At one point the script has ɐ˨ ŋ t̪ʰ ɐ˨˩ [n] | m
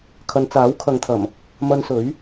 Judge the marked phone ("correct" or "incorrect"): incorrect